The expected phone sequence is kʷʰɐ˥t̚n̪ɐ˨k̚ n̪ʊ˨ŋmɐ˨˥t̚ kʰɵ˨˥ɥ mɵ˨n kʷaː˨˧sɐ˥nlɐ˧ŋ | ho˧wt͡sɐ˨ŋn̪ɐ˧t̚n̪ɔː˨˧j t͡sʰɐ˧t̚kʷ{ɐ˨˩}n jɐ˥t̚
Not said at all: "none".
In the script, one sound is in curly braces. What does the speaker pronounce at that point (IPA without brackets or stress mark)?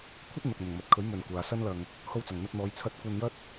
ɐ˧